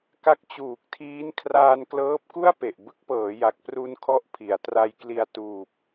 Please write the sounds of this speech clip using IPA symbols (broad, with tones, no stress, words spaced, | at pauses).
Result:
ka˦˥k̚t͡ɕuː˨˩k̚tʰiː˦˥n kʰraː˧nklɤː˦˥p̚ku˥˩a̯pe˨˩ʔ bɯ˦˥k̚pɤː˩˦ja˨˩k̚ pru˧nkʰɔ˦˥ʔ pʰi˩˦a̯tra˧jkli˧a̯ tuː˨˩p̚